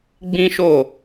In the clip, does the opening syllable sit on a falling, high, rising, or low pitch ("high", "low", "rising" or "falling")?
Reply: high